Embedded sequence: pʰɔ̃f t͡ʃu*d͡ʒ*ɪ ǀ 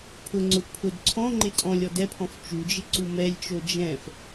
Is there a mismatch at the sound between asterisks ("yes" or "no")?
no